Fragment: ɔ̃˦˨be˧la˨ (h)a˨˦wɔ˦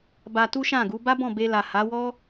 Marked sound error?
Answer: no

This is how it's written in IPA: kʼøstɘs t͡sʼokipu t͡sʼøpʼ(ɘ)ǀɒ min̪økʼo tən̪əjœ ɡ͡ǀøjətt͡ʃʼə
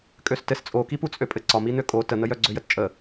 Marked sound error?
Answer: no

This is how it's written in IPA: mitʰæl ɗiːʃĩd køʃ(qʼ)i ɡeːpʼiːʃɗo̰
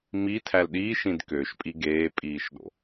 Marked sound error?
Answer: yes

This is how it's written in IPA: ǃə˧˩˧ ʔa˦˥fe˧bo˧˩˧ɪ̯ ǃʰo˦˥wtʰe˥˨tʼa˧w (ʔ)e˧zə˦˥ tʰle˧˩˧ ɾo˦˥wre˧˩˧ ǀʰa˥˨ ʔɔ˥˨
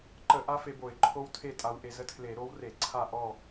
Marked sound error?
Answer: no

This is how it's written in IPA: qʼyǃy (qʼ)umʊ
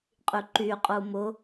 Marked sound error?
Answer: no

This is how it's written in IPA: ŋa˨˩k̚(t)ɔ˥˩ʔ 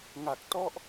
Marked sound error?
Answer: no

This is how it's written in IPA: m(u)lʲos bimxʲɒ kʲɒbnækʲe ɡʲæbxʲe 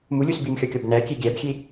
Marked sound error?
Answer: no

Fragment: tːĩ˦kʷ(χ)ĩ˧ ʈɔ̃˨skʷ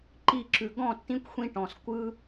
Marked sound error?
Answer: yes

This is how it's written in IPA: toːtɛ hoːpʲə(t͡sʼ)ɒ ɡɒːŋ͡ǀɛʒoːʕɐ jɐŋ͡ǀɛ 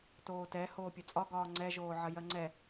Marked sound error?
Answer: no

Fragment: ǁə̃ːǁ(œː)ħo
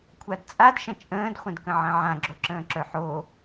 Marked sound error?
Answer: yes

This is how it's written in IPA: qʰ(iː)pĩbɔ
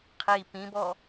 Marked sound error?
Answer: no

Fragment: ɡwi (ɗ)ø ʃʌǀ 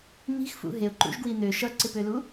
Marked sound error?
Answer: yes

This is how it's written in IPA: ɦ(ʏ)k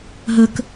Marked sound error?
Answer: yes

